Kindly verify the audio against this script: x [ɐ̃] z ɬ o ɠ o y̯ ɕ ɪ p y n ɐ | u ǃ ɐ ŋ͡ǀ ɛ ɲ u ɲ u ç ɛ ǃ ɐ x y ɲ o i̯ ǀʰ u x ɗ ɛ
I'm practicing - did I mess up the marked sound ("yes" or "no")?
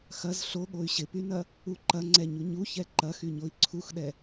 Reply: yes